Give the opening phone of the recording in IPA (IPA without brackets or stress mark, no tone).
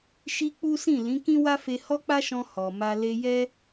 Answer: ʃ